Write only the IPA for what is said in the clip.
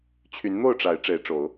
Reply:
t͡ɕʰy˨˦nn̪o˥˨ʊ̯ʈ͡ʂa˨˦ɪ̯ ʈ͡ʂe˨˦ɪ̯ʈ͡ʂo˨˦ʊ̯

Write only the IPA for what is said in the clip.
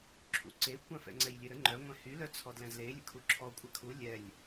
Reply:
ǁʰṵǀekʷãf ɛ̰ŋ͡ǀɛjlʲeɾə ŋ͡ǃœŋʷɛ̃ hylœt͡sʰɔ dlɛ̃zle lʲə̰kʰuǁʰɔkʷʼa kʰu lʲɛlʲ

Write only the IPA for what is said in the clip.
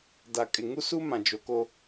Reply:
da˨kʼɪ˨ŋu˦su˦ mã˨d͡ʒo˨ko˦

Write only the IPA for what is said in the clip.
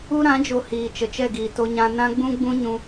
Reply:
u˧ɾã˨˦d͡ʒo˨ hiː˨t͡ʃə˨t͡ʃɛ˦˨ ɡiː˨to˧ɲã˧ nã˦ɡ͡bũ˦ɡ͡bũ˦ ɲũ˧

